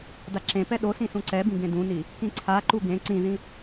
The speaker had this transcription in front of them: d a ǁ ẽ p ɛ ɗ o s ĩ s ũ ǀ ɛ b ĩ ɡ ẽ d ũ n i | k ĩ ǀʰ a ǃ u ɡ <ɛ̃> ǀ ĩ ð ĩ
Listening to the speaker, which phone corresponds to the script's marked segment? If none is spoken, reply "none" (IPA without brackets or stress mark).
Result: ẽ